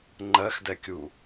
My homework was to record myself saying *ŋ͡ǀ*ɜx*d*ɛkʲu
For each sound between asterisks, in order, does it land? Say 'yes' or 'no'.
no, yes

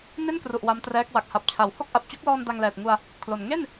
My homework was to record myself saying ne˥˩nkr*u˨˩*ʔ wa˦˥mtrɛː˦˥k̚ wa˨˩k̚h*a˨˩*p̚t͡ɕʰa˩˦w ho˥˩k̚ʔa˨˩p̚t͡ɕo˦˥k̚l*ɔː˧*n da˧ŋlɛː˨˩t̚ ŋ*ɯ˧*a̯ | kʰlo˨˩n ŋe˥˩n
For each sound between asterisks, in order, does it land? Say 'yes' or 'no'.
yes, yes, yes, no

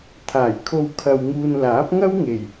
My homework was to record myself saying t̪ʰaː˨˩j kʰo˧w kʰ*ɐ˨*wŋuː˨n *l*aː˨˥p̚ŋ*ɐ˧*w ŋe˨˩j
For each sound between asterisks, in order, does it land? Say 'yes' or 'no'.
yes, yes, no

